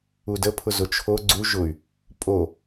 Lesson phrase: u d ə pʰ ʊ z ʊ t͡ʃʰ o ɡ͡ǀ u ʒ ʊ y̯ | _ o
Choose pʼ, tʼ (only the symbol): pʼ